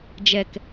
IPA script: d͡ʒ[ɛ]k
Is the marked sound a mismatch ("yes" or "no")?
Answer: no